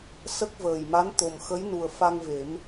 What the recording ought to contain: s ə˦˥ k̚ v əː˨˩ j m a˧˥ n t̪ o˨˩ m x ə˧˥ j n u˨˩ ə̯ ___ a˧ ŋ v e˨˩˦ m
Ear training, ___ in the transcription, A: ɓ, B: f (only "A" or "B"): B